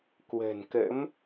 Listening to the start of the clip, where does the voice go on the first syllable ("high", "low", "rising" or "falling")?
low